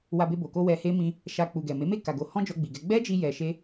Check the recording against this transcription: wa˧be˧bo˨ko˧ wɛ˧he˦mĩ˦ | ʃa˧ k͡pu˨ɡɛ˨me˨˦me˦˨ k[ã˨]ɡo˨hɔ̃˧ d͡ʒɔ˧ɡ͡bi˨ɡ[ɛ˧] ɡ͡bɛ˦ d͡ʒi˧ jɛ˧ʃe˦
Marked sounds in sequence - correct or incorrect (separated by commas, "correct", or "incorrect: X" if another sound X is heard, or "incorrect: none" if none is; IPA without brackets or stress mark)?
incorrect: a˨, correct